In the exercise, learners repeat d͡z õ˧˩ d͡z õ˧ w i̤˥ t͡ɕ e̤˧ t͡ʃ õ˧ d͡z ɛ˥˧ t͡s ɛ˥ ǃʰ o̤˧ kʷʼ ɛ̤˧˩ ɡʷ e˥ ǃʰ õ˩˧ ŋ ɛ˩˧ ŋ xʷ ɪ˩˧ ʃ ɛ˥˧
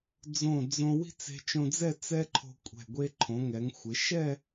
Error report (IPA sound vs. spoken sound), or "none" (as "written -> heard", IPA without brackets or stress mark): t͡ɕ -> t͡s